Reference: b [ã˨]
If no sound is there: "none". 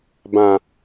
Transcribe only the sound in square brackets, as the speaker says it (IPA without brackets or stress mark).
ã˨